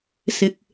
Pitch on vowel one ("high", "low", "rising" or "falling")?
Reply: low